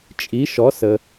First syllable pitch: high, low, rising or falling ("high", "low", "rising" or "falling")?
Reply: rising